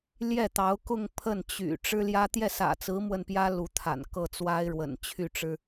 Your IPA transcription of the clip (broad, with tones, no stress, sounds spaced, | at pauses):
l j ɛ˥˩ t̪ ɑ˧˥ ʊ̯ k ʊ˥˧ ŋ pʰ ə˥˩ n t͡ɕ y̰˨˩ ʈ͡ʂ ɻ̩˥ l j ä˥ t̪ j ɛ˥˩ s ä̰˨˩ t͡s ɹ̩˧˥ m w ə˥˩ n p j ä˥ l u˧˥ t̪ʰ a̰˨˩ n k ɤ˥˩ t͡s w a˥ ɪ̯ ɻ w ə̰˨˩ n t͡ɕʰ y˥˩ ʈ͡ʂ ɻ̩˥